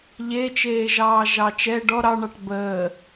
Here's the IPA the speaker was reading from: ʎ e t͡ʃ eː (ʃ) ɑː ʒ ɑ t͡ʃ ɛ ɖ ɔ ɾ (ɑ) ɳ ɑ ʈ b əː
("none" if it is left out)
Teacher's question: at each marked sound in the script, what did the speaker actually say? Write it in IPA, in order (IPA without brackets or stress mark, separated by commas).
ʒ, ɑ